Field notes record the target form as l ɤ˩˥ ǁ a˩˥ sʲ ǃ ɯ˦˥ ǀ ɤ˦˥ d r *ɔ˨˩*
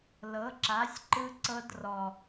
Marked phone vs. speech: correct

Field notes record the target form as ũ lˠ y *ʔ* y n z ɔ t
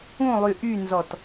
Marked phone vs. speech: correct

